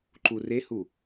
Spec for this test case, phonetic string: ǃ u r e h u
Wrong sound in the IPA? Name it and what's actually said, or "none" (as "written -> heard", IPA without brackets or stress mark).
none